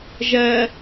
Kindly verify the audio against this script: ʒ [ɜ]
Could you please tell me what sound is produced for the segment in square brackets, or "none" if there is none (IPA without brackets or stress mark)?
ɜ